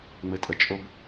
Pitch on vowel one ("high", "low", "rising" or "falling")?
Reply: low